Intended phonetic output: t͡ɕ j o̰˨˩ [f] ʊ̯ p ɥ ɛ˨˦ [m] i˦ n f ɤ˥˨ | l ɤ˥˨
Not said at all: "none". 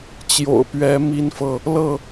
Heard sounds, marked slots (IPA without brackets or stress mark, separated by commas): none, m